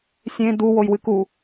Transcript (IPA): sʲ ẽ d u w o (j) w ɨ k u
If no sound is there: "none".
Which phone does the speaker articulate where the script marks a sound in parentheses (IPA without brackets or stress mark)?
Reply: j